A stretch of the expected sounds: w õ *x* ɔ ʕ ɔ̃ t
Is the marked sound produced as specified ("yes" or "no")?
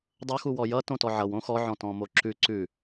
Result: yes